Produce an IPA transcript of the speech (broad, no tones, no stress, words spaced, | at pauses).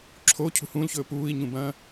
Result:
ǁʰo cʰṳhũːlçɵː puːi̯ɲũbɐ̃ː